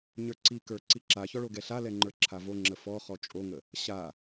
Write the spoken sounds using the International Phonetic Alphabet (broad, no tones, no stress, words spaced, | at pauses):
ɲə˞ǀikə˞ ǀiǁaçɔ ɭoɡɛɬalɛ ŋ͡ǃə˞ǁʰavoŋ͡ǁə fɔ χɔt͡ʃʼoŋə | ɕa